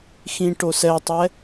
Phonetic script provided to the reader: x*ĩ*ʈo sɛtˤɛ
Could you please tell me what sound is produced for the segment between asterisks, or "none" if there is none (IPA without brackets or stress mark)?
ĩ